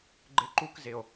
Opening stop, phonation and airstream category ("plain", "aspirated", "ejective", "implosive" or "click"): click